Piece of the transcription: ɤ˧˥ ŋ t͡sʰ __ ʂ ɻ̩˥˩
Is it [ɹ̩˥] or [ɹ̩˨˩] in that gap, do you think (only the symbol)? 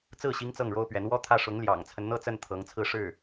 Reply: ɹ̩˥